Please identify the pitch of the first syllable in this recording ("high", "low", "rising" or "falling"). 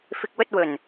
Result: low